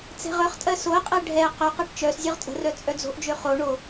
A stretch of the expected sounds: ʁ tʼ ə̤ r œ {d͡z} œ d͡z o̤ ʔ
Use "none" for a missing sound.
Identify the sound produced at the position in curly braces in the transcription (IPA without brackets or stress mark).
t͡sʼ